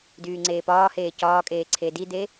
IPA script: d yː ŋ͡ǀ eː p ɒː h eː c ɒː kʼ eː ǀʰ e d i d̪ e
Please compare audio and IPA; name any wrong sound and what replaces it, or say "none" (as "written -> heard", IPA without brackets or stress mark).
none